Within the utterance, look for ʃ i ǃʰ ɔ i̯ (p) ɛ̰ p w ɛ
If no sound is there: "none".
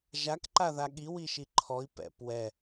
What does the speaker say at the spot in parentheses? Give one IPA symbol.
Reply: p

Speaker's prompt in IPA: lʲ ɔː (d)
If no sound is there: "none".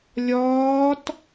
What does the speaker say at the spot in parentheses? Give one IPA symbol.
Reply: t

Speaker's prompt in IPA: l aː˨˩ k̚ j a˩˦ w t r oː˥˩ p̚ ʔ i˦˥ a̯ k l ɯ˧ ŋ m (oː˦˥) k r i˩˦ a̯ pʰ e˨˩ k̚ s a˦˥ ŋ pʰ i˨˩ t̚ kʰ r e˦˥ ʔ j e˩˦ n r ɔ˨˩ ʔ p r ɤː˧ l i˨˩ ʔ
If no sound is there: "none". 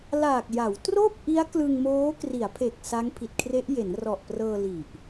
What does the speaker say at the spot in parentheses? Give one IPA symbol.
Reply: oː˦˥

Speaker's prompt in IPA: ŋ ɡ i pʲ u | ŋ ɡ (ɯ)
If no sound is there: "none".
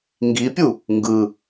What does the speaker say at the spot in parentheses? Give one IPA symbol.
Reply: ɯ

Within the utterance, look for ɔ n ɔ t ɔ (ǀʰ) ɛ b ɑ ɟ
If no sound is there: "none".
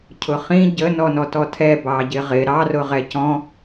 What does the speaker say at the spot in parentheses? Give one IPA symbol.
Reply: tʰ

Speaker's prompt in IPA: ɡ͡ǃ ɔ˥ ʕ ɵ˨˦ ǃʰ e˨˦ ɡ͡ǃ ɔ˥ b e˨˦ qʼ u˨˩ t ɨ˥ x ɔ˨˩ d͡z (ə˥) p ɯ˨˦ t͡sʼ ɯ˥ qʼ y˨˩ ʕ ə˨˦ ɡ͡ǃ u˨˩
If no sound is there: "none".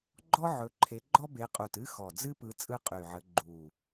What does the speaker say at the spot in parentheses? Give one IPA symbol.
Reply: ɨ˥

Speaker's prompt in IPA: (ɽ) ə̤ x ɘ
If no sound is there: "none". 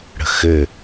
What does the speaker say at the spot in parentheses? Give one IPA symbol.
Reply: ɽ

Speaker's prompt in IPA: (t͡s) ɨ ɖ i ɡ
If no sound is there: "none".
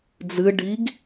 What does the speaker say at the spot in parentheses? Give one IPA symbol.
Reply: d͡z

